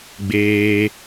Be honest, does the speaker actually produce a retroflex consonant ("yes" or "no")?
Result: no